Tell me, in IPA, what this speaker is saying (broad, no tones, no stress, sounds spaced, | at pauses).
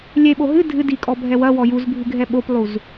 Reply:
lʲ e ɓ o ɦ ɨ dʱ ɨ d i kʼ ɔ bʱ ɛ w ɐ w ɔ j u z bʱ ɨ ɡʱ ɛ ɓ o p lˠ u z